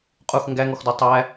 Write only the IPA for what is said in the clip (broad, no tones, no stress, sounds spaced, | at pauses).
qʼ u x ŋ ɡ æ ŋ ɔ x d ɔ tˤ æ